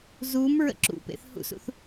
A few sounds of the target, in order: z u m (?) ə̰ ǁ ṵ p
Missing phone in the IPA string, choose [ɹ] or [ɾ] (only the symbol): ɹ